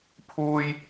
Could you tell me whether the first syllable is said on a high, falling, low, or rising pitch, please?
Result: high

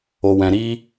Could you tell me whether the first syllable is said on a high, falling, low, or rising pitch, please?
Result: low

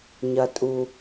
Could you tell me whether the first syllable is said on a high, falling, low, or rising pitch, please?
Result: low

